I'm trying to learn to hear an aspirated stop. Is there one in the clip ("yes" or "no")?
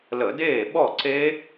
no